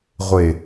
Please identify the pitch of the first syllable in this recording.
low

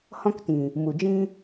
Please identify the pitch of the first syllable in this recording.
high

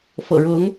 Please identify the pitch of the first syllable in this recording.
low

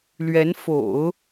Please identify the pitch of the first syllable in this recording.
rising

